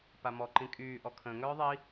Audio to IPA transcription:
p a m ɔ ǃ ĩ kʼ yː ʔ ɔ kʰ ə̃ː ŋ œː ðˤ i

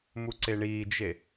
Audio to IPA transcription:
m u ǀ e ɳ iː d͡ʒ e

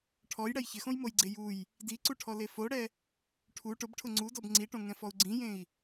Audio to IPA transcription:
ʈʰ ɔ j ɽ ɛ j ç ɪ x õ j m o j ɡ͡ǀ e j u j | d i ǀ u ʈʰ ɔ l e f o ɽ ɛ | ʈʰ u ʈ ʊ b ʈʰ ʊ ŋ͡ǀ u d ɔ b ŋ͡ǀ i ʈ õ ŋ ɛ̃ f ɔ u̯ ɡ͡ǀ ĩ j ẽ i̯

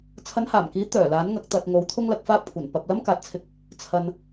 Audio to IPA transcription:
t͡sʰ ɐ˨˧ n h aː˨˩ m k iː˨˥ t̪ œː˨˩ l aː˨˥ n ŋ ɐ˨˥ k̚ t̪ ɐ˨ t̚ ŋ o˨˥ w t̪ʰ ʊ˥ ŋ l ɐ˨ k̚ f aː˥ p̚ kʷʰ ɐ˨˩ n p ɐ˨ p̚ l ɐ˥ m k aː˨ t̚ t͡sʰ ɪ˧ k̚ | t͡sʰ ɐ˨ n

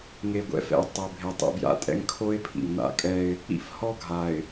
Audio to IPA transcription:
ŋ e˨ ɡʷ ɛ̰˦ f ɛ̰˨ ɪ̯ tˤ ɛ˨ bʱ e˨ tˤ ḭ˨ b j a̰˨ tʼ ɛ̰˦ ŋ kʰ o˦ ɪ̯ pʰ ḭ˨ ŋ n a̰˦ kʼ ɛ˦ ɪ̯ | ḭ˦ f h ɔ˦ ɡʱ a˨ ɪ̯

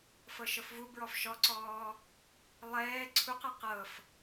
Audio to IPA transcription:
f ɤ ʃ ɤ f v u b ɹ ɔ f ʃ ɔ ǀ ɔː | lˠ ɛː ǀʰ u q e q ɤ f

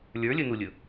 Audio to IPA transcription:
lʲ ə˞ lʲ ɵ n u lʲ ɵ

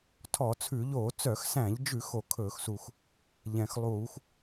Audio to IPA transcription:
tʰ ɔ˧˩˧ t͡sʰ ʉ˧˩˧ ʎ oː˧˩˧ t͡s œ˧˩˧ x s æ̃˧˩˧ ʎ d͡ʒ ʉ˧˩˧ x o˧˩˧ kʰ ɵː˧˩˧ x s u˨˩ x | ʎ ɛ̃˨˩ x lˠ uː˧˩˧ x

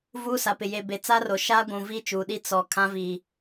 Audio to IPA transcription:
v uː˦ s a˨ p ɪ˨ j e˨ b e˨ t͡s a˦ r o˨ ʃ aː˦ ɡʷ ũ˨ v i˦ t͡ʃ uː˨ ɗ i˦ t͡s ɔ˨ kʰ ã˦ v iː˨

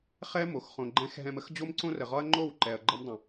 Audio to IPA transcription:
χ ɛ˦ m o˨ x χ õ˨ ɡ͡ǃ ɛ̃˧ x ɦ ɛ̃˧ m ə˦ x d͡ʑ o˦ m ǀ õ˦ r ə˨ ʁ ɒ˦ ɐ̯ ŋ͡ǃ o˦˨ w ǃ ɛ˨ ɐ̯ ɡ͡ǃ ə˧ m dˤ ə̃˨

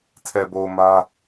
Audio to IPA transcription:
tʰ ɛ˨ b o˨ ʊ̯ m ä˦

